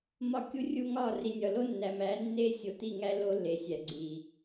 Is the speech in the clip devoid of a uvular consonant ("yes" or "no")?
yes